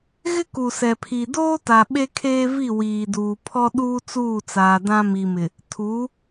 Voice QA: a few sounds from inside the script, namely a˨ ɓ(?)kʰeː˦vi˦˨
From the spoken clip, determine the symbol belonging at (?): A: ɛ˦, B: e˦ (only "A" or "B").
B